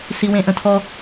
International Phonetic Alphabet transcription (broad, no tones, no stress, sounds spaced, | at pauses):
s i w ẽ ʔ ə̃ tʰ ɔ